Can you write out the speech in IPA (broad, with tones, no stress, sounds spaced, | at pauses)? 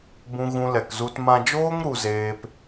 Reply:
b ũ˦ ɣ ũ˦ l ɛ˧ k z u˦ t m ã˧ d͡ʒ oː˦ ŋ ɾ u˦ z eː˦ p